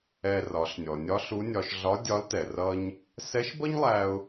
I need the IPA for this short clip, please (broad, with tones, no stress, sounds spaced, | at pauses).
ɛ˧ r ɒ˩˧ ɬ nʲ ɔ˩ nʲ ɒ˧˥ ɬ u˧˥ nʲ ɒ˧ ʃ ɮ ɒ˧˥ dʲ ɒ˧˥ l t ɛ˩ r ʌ˥ ɲ | s ɛ˧˥ ʃ b ʌ˥ ɲ lˠ æ˧ ʊ̯